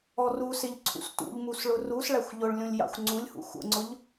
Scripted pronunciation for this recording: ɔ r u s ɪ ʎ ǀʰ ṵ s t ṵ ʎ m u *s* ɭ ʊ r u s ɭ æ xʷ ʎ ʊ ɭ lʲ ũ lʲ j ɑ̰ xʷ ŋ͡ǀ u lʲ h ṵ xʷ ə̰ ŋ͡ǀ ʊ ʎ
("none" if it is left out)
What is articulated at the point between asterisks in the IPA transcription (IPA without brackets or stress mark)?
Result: s